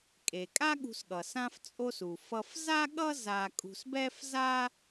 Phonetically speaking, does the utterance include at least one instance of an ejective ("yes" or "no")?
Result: yes